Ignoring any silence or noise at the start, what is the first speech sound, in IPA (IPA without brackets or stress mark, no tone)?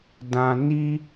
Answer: d